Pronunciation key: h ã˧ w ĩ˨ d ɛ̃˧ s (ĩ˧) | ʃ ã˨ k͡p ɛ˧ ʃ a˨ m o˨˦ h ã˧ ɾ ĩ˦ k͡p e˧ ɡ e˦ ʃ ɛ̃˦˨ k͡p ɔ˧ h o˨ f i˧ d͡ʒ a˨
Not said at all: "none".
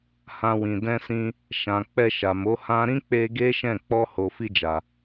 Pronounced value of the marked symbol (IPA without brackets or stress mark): ĩ˧